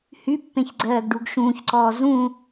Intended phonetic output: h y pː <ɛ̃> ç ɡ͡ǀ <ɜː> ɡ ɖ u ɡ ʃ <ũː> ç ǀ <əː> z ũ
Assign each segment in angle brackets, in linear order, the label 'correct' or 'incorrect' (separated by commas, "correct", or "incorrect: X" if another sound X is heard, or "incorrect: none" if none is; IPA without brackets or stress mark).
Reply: incorrect: ẽ, correct, correct, incorrect: ɔː